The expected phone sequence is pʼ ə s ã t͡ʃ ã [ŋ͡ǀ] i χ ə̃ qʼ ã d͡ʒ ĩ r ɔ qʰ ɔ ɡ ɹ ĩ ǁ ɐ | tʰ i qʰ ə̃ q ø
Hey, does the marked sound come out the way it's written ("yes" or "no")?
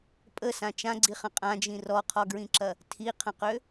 no